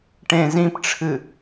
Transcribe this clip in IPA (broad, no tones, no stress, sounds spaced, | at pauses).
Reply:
ʈ ẽ z ĩ p ʈ͡ʂʰ ɨ